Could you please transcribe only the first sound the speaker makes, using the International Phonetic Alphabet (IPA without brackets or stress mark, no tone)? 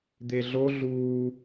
d̪